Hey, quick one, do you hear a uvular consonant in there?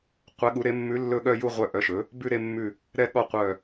yes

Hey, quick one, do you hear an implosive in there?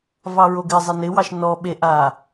yes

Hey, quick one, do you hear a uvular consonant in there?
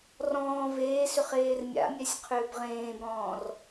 yes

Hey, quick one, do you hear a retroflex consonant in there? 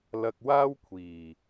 no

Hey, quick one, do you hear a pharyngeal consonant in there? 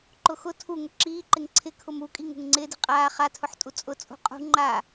yes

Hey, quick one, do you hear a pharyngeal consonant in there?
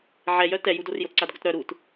yes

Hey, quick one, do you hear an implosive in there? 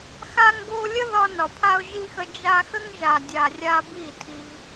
no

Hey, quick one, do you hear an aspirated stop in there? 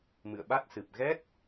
no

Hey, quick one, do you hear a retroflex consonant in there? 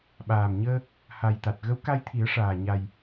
yes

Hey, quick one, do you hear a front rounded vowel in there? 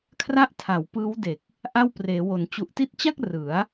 no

